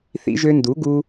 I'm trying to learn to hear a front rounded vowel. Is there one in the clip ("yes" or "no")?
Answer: yes